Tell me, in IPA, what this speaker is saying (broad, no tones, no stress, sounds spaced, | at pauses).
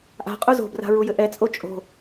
ʔ a̤ qʼ u z o̤ b r a̤ ɹ u j ɘ ʔ ɛ t͡sʼ o t͡ʃʼ o̤